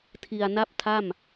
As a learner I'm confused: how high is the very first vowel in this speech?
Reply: high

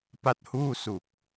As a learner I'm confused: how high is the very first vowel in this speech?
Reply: low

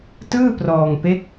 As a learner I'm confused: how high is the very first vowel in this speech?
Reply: high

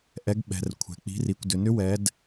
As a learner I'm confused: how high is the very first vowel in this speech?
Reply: mid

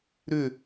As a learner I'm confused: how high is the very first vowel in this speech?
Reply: high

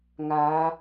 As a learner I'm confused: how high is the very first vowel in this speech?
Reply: low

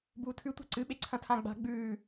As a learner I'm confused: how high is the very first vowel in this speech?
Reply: high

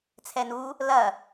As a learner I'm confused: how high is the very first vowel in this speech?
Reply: mid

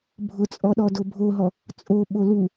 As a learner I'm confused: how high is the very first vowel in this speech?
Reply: high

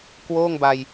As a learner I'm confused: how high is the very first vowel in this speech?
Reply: mid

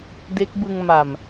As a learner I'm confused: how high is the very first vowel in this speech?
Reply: mid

